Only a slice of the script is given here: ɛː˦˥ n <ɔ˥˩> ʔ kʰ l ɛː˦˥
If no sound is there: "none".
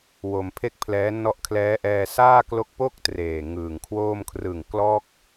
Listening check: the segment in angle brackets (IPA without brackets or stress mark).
ɔ˦˥